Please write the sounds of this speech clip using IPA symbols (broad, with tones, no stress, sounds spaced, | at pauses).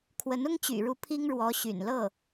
kʰ w ə˧˥ n ʊ˥ ŋ t͡ɕ y̰˨˩ ɻ u˧˥ pʰ i˥ ŋ ɻ w ɔ˧˥ ɕ y̰˨˩ n l ɤ˥˩